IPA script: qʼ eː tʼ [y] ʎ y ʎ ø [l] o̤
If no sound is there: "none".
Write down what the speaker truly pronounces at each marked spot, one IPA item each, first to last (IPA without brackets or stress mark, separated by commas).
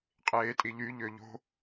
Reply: i, ʎ